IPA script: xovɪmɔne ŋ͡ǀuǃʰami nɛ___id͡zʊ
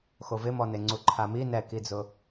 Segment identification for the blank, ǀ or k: k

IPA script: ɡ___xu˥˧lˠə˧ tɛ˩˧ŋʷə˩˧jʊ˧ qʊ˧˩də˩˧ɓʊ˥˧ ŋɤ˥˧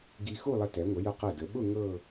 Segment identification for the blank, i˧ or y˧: i˧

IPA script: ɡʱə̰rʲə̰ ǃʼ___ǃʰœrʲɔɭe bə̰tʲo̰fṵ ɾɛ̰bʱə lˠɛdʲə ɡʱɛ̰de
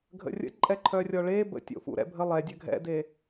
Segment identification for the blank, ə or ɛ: ɛ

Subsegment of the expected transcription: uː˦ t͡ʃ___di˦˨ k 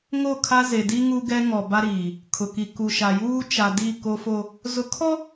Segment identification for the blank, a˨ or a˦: a˨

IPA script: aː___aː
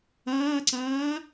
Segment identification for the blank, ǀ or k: ǀ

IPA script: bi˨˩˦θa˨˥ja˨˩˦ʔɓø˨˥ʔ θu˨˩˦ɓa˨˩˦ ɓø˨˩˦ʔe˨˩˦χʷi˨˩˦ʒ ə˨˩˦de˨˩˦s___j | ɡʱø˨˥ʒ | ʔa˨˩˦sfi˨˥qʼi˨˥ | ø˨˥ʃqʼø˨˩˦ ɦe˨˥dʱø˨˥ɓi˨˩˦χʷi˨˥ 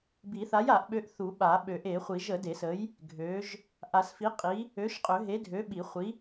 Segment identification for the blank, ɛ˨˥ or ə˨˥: ə˨˥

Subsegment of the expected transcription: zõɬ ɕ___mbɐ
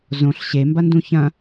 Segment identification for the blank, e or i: e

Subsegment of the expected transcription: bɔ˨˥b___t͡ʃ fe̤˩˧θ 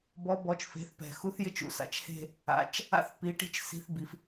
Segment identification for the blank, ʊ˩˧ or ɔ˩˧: ɔ˩˧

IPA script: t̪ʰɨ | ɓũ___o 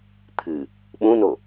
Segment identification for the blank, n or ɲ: n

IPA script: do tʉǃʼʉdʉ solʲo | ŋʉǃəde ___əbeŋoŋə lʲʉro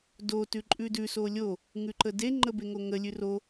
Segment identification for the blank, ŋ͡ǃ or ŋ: ŋ͡ǃ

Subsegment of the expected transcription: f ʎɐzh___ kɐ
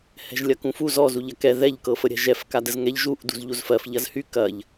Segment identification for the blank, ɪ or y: y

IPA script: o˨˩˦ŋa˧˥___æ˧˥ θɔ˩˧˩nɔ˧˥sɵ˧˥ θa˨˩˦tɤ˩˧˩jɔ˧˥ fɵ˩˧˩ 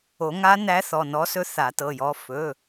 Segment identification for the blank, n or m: n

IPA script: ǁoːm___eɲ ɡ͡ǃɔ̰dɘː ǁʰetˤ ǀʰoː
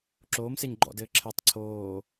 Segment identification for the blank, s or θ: s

